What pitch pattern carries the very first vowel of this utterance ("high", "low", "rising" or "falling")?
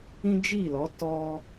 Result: high